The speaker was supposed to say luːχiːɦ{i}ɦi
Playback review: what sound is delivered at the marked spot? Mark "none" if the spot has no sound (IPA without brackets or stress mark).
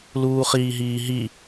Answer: iː